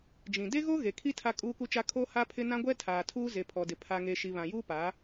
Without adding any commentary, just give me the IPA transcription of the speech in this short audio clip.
d͡ʒĩ˨ de˦ɣo˦ ɣe˨kʰi˦ tʰa˦kʼuː˦ku˦t͡ʃa˦ kʰo˦ha˦pʰɪ˦ nã˦ɡʷɛ˦ tʰaː˨tʰuː˦ ze˨pʰɔ˨dɪ˨ pʰa˨ŋe˨ ʃi˨βã˨juː˦ paː˨˦

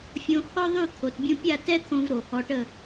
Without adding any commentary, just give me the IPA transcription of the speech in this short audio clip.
fʲõ˧hɔ˥ðˤy˥˨t̪ʰo˩˧t bʲũ˧pʲa˥˨tɛ˥t̪ʰõ˧v ɾo˨˩hɔ˧ʈə˥˨

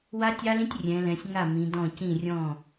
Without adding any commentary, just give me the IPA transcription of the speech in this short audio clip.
wa˦tʲɑ˦lĩ˦tʲ rʲɛ̃˨˦lɛ̃˨˦sʲ ŋa˥˩ mĩ˨˦dɔ̃˥˩ cĩ˥˩rʲɔ̃˥˩

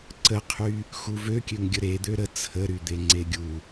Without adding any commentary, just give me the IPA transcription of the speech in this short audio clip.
ǀəqʰy | xuvøkʲøŋɡʲə ɾed̪ø ɾə t͡sʰə ɾyd̪eŋ͡ǀeɡʲu

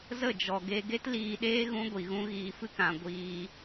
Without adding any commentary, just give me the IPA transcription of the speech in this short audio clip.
zə˦˨d͡ʒɔ˨ ɡe˧ ɡe˦tliː˧ɗeː˦ ɣũ˦ɡʷi˨ɣũ˦ ɣiː˧fɨ˦kã˧ ɡʷiː˧

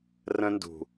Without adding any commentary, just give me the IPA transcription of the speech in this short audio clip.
rə̃˦ndṳ˨

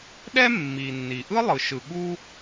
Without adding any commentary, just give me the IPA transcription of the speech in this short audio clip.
ɗɛ˥ mːi˩ nːi˩ʔɯ˥ lˠɯ˩ʃɯ˩ ɠu˥

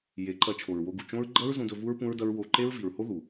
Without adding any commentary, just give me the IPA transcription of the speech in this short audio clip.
je˨˦ǃɐ˧ t͡ʃʰo˨ɹwo˧ɡu˨ t͡ʃõ˦ɹ ɡ͡ǃɐ˦ɹzũ˧ dɵ˧vu˦ɹ pũ˦ɹdɐ˦ɹ wo˧ ǃe˦ɹvi˨ɹho˦ ðu˨

